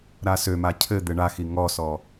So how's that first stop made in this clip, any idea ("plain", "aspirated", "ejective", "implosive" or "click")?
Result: aspirated